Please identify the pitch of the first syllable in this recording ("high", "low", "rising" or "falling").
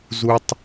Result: high